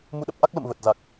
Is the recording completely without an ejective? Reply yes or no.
yes